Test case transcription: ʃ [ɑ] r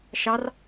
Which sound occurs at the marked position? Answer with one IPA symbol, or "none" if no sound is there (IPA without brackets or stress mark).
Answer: ɑ